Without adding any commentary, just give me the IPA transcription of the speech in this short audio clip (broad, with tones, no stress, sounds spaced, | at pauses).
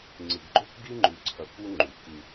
ŋ͡ǀ ɨ˨ ɡ ɡ͡ǃ o˦ k ɡ i˦ ŋ͡ǃ ʉ˨ ǀʰ ɐ˨ k u˦ ŋ͡ǃ u˨ k ɨ˦